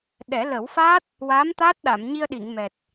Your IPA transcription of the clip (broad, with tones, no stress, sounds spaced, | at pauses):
ɗ ɛ˨˩˦ l ə˨˩˦ w f aː˦˥ t̚ | w aː˧˥ m t̪ aː˦˥ t̚ ɗ a˨˩˨ m ɲ i˧ ə̯ ɗ i˨˩˨ ŋ m ɛ˨˩ t̚